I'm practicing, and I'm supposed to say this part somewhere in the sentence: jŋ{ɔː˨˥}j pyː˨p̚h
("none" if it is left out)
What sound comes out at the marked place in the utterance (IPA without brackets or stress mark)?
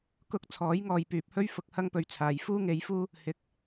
ɔː˨